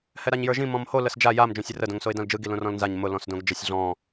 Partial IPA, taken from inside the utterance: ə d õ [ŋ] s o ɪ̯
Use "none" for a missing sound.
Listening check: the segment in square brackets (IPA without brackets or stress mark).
ŋ